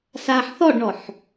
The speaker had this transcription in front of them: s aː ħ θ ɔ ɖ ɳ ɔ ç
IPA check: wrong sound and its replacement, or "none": ç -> ħ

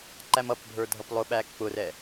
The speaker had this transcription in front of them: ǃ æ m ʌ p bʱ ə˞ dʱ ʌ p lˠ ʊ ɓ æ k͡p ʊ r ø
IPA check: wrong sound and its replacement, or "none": ø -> ɛ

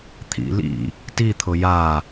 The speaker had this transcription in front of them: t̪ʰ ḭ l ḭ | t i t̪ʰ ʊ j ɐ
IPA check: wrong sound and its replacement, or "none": ɐ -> a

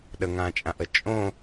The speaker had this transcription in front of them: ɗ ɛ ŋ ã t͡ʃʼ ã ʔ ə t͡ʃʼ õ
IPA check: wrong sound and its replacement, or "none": ɛ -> ə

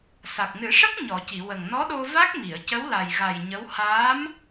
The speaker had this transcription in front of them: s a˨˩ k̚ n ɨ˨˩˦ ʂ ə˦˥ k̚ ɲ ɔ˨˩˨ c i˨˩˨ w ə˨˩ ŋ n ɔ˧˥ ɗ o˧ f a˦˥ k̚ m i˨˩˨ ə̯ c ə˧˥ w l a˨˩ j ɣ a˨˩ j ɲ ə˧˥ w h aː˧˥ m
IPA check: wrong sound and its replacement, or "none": f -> v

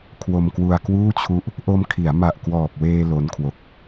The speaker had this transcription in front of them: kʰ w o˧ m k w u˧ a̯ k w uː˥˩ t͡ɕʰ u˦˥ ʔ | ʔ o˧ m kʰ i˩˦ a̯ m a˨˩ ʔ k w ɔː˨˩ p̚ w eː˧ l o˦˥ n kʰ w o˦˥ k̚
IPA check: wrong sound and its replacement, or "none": none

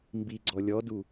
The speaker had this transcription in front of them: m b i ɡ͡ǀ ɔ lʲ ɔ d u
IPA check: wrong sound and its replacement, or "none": none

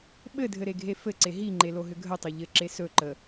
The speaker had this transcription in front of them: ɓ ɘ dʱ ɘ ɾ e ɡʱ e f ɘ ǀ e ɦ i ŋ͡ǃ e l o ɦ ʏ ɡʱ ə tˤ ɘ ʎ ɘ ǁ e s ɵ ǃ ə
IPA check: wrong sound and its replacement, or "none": none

